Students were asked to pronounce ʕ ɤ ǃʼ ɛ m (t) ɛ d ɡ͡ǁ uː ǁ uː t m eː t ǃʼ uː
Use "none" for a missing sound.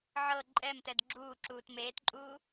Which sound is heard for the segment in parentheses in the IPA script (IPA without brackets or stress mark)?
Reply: t